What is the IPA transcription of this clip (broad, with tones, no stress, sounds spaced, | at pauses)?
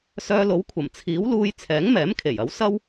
s œː˧ l o˨˥ w kʷʰ ɐ˨˩ m t͡sʰ iː˨˥ w l uː˧ j t͡sʰ ɛː˨˥ ŋ m ɛː˨˥ m kʰ e˨˩ j ɐ˨˥ w s ɐ˥ w